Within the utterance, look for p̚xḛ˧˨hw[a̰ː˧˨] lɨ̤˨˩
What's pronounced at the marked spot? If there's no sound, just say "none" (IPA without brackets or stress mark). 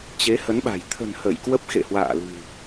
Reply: a̰ː˧˨